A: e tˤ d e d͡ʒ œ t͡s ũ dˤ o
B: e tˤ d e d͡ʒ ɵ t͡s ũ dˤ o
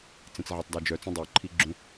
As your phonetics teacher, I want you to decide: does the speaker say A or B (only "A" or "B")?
A